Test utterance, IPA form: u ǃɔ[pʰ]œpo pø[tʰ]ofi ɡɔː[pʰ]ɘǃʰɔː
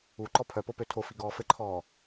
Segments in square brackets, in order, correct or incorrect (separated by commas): correct, correct, incorrect